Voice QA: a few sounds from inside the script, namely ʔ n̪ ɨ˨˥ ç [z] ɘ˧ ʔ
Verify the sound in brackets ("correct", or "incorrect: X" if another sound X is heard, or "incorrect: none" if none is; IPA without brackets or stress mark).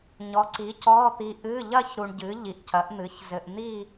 correct